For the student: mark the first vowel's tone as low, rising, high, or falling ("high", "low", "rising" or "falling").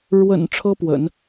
low